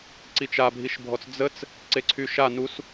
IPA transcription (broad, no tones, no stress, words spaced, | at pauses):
ǀit͡ʃabʱiʃbʱɔt͡s d͡zət͡s | ǀeǀʰyʃa nus